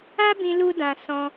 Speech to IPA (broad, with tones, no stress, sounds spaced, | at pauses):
a˦ b ĩ˧ l u˦ d ã˧ s ɔ̃˧